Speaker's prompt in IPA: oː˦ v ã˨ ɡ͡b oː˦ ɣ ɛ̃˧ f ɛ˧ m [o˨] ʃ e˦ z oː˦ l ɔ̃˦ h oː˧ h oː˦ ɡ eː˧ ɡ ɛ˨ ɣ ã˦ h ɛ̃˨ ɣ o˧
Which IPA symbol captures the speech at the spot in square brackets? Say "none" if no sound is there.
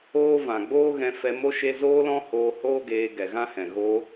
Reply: o˦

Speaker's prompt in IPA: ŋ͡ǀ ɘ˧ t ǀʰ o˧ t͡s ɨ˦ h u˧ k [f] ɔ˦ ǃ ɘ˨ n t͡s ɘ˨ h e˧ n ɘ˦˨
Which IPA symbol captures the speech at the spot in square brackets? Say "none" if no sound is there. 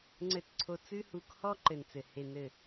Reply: h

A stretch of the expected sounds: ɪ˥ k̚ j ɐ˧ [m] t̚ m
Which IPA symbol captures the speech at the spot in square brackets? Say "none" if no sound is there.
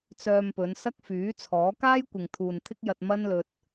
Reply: none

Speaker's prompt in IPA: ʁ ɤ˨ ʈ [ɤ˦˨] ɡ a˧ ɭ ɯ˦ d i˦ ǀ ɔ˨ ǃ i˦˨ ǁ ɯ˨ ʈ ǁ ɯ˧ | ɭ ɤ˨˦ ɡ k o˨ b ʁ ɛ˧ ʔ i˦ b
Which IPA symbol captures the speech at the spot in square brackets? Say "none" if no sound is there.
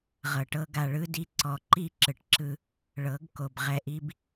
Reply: ɤ˦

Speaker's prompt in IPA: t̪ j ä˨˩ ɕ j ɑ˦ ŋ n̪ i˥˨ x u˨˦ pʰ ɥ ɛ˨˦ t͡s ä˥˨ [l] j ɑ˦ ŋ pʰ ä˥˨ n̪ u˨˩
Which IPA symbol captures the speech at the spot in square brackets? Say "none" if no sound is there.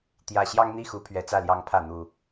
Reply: l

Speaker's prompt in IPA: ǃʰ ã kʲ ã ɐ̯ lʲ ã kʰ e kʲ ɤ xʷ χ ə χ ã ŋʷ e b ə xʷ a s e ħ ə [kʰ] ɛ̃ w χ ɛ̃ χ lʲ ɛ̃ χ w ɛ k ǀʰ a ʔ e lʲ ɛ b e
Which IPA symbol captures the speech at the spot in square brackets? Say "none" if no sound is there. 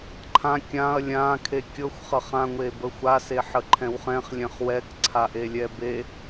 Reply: ǃʰ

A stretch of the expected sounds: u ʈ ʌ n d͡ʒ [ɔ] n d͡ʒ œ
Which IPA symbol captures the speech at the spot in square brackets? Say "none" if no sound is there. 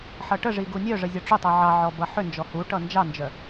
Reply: ɑ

